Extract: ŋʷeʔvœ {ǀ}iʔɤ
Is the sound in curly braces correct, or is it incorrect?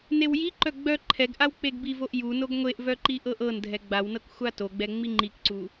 incorrect